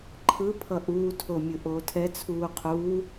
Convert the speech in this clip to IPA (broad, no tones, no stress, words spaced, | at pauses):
ǃʰɯ pʰʌʔuːtʰo mʲɯʔoːtʰɛt͡sʰuː qʰuː